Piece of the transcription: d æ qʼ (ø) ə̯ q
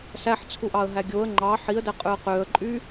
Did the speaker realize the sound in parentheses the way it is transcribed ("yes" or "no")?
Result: yes